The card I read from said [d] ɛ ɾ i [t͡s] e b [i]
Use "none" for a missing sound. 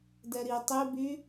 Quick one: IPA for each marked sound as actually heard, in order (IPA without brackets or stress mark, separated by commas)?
d, tˤ, y